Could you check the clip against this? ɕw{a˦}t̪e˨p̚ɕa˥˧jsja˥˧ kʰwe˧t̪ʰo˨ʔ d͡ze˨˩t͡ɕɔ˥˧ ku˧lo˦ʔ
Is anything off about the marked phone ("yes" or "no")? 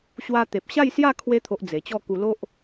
yes